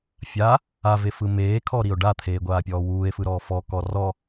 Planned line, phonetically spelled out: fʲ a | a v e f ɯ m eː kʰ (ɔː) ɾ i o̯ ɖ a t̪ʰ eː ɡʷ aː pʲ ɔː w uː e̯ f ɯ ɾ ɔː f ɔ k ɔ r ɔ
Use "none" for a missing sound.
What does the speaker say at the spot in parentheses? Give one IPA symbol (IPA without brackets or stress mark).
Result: ɔ